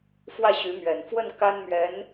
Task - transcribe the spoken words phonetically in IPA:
f w ä˥˩ ɕ y˧˥ m ɥ ɛ˨˩ n f w ə˥˩ n k a˥ n m ɥ ɛ˧˥ n

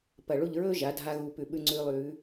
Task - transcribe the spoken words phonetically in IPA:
p ɐ˧˩ ɭ u˥˧ ʎ ɹ ɵː˥ ʒ a˩˧ dʱ a˧ ɣ u˧˩ p ʉ˧˩ ɓ ʉ˧ ŋ͡ǀ ʉː˧ lˠ ʉː˩˧

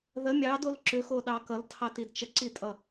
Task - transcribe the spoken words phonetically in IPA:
ð ə mʲ ɑ d o l ǁ ʏ x o ɗ ɑ k ʌ l tʰ ɑ t i d t͡ʃ ə ǀ i tʼ ʌ

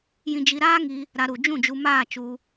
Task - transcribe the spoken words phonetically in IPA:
j ĩ˧ d͡ʒ i˧ ɾ aː˦ ŋ i˧ | ɾ a˧ ɾ u˨ d͡ʒ ũ˦˨ d͡ʒ u˧ m aː˦˨ t͡ʃ u˧

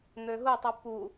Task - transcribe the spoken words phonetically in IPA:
n̪ ø ɦ u tˤ ɨ p u

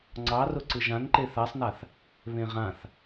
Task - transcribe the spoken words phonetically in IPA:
ŋ͡ǀ ɑ r ʊ ǀ ɯ ʒ ã n ǃ e θ a sˤ n a θ | β ẽ ʁ ã θ

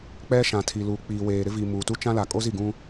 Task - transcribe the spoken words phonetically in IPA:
k͡p ɛ˦ ʃ ã˨ tʰ i˨ l uː˨ k͡p iː˨ w eː˨ ɾ ɪ˦ v i˨ m uː˨ t u˦ t͡ʃ ã˦ l a˨ kʼ o˦ z i˦˨ ɡ ũ˦

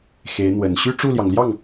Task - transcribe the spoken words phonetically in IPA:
x e˧˥ ɪ̯ n̪ w ə˨˩ n ɕ y˥˧ ʈ͡ʂ u˥˩ l j ɑ˩ ŋ l j ɑ˥˩ ŋ

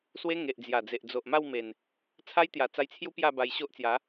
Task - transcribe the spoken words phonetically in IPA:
s w e˦ ŋ e˨ ʔ d͡z j a˨˩ d͡z e˨ ʔ d͡z o˨ ʔ m a˥˧ w m e˨˩ n | t͡sʰ a˦ j t̪ j a˨˩ t͡s a˧ j t͡sʰ j u˦ p j a˥˧ b a˧ j ɕ o˦ ʔ t͡s j a˨˦

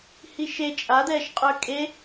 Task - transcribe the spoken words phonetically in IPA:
h i ʃ e t͡ʃʼ a d̪ ɛː ʃ qʼ œ kʼ e

